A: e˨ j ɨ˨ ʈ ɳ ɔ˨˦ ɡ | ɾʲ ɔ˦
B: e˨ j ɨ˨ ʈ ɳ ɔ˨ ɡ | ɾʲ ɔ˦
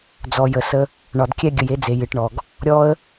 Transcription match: B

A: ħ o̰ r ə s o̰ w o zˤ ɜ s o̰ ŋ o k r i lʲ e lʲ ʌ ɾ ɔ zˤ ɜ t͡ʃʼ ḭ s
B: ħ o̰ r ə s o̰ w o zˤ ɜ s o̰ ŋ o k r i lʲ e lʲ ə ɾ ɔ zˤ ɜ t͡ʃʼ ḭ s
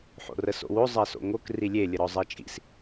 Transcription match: B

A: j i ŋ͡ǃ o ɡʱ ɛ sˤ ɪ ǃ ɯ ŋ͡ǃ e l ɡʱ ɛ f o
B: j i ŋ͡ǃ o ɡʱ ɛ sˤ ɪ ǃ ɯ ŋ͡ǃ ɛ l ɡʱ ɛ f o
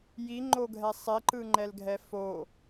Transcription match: B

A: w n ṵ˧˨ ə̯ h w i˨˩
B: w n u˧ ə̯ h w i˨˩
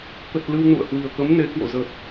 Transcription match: A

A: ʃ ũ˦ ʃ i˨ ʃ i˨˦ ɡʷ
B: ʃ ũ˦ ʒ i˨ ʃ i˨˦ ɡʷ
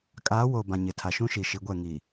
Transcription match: A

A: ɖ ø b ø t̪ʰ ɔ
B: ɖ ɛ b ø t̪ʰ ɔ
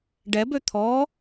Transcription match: B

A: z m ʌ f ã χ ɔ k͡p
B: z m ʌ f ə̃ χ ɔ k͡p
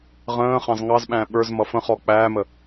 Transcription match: B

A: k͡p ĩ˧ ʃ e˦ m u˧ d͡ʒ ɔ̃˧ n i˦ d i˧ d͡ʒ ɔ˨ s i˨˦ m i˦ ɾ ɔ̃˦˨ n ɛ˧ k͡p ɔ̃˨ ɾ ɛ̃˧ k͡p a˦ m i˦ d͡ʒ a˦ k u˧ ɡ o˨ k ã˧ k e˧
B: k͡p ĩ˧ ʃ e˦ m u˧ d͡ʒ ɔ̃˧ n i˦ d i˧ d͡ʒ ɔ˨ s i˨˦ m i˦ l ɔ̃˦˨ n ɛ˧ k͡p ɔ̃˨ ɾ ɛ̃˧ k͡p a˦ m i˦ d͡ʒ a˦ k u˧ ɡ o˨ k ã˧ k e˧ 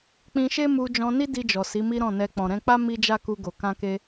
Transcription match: A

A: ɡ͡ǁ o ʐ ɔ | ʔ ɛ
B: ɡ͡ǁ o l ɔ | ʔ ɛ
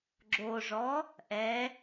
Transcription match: A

